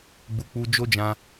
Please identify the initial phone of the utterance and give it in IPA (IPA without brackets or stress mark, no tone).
ɡ͡b